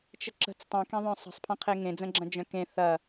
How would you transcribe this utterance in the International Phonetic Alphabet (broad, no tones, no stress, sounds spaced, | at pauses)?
t͡ʃ ə ǁ ə̤ t͡s tˤ ẽ k ẽ ðˤ œ̃ sˤ ə̤ sˤ pʰ ɐ̃ qʰ e ŋ ẽ d͡z ə̃ ɡ͡ǁ ɐ̃ d͡ʒ œ̃ k ẽ θ ɐ